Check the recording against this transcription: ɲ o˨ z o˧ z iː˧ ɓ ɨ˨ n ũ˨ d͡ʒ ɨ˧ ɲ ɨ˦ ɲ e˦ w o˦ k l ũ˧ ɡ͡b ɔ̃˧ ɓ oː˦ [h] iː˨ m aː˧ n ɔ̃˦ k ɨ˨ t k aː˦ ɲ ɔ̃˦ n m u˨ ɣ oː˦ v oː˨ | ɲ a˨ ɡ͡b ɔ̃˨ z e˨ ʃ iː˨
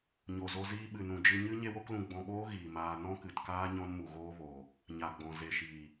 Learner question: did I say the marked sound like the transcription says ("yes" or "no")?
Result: no